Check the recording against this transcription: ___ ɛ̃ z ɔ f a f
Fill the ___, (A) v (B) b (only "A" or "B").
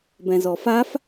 B